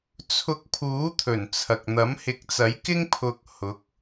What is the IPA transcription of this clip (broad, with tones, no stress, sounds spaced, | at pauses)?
t͡sʰ ʊ˧ k̚ pʰ uː˨˥ t̪ʰ ɵ˨˩ n t͡sʰ ɐ˨ k̚ n̪ ɐ˨˥ m h ɪ˨˥ k̚ t͡s ɐ˨˥ j k ɪ˥ ŋ pʰ ʊ˧ k̚ h ʊ˨˥ k̚